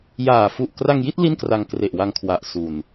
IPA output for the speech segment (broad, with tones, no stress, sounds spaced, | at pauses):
j aː˨˩ f u˨˩ ʔ k r a˧ ŋ j i˥˩ t̚ l i˥˩ n k r a˧ ŋ k r e˨˩ ʔ w a˧ ŋ kʰ w a˨˩ ʔ s u˧ n